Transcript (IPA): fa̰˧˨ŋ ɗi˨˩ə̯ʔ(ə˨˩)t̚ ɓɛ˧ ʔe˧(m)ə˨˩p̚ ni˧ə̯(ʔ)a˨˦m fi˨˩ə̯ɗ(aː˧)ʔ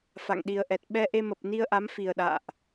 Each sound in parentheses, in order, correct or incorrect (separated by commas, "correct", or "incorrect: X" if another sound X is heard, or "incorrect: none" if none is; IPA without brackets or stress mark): incorrect: ɛ˨˩, correct, correct, incorrect: a̰ː˧˨